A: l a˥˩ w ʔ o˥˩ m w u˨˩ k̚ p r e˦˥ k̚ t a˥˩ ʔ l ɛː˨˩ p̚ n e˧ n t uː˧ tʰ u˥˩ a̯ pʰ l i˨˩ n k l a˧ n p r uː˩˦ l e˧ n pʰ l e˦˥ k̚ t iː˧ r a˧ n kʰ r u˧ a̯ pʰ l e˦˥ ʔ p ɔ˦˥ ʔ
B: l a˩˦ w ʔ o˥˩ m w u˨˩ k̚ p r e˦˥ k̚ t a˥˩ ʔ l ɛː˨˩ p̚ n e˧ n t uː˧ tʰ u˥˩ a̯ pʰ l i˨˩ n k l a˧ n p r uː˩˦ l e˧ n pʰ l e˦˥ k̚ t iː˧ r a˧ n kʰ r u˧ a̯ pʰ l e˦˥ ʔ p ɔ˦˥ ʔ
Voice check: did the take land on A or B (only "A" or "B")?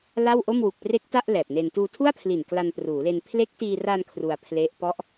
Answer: A